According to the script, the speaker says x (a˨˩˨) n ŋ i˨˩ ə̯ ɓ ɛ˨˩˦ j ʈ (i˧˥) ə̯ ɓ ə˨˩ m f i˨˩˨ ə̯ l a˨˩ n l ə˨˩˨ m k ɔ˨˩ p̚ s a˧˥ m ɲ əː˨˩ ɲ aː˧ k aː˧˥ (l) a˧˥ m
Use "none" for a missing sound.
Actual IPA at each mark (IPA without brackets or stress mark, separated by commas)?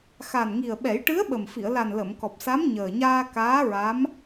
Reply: a˨˩, ɨ˧˥, ɹ